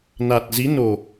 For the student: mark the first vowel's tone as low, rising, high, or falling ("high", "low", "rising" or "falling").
low